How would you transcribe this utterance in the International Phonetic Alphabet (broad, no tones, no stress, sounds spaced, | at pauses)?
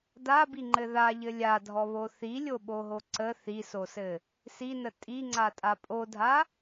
d a b i ŋ͡ǃ ɘ ð a ʎ ɘ lʲ a dʱ ɔ β o θ i lʲ o ɓ o ɦ o ǀ ə θ i s o s ɘ | s i n ə tʼ i ŋ͡ǀ a tʼ a pʼ o dʱ a